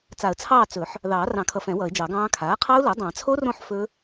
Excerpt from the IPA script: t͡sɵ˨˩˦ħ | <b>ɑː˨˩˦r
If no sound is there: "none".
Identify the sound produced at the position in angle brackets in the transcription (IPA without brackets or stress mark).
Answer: ð